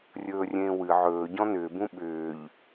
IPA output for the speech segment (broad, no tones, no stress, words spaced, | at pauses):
rʲɵːrʲẽːwɨ ʕɵː ɟɔ̃nʏː bũɓʏːʎ